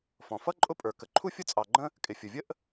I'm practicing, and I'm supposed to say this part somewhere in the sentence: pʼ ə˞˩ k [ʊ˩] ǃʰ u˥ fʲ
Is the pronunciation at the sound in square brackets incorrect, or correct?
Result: incorrect